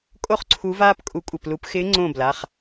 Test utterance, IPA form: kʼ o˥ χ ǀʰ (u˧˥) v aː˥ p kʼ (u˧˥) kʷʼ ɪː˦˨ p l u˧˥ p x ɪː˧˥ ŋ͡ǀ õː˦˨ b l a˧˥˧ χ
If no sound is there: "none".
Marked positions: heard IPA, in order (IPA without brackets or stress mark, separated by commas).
u˧˥, u˧˥